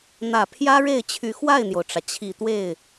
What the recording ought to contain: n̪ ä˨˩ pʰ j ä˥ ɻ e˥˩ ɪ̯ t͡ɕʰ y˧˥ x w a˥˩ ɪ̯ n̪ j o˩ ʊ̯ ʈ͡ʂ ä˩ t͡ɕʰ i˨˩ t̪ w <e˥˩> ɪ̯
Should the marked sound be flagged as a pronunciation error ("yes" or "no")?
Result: no